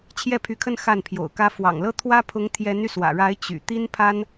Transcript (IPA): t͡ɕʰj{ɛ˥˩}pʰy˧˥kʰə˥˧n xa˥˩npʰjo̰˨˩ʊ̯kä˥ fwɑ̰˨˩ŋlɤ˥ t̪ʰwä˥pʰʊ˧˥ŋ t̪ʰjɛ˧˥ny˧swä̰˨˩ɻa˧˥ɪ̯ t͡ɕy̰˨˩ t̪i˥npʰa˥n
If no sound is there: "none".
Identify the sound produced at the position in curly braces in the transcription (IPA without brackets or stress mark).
ɛ˥˩